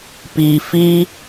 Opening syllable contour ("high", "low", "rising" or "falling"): low